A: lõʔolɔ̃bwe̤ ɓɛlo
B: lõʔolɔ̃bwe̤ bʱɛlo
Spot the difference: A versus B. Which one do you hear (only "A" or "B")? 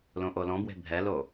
B